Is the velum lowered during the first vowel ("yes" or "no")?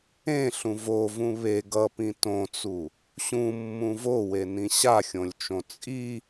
yes